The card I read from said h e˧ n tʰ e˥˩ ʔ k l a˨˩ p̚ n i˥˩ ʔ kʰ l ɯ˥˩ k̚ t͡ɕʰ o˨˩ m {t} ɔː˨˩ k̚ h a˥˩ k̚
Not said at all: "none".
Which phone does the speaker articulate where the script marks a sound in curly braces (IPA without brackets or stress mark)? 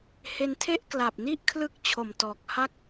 t